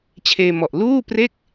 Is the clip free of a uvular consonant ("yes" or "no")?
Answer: yes